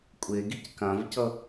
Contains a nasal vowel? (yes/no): yes